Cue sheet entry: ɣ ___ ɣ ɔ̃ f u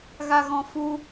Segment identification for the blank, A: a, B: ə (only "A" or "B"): A